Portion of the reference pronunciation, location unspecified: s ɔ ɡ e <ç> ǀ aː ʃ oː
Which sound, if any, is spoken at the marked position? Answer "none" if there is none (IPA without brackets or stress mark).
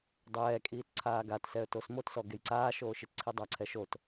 j